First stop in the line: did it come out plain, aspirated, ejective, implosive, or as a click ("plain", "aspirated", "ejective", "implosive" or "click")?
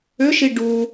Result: plain